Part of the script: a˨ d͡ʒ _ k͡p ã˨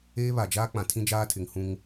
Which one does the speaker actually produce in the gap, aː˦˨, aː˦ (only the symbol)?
aː˦